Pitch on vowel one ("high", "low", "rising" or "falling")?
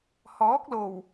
rising